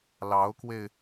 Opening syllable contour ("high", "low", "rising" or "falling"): rising